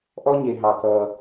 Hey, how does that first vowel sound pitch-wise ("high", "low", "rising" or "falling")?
high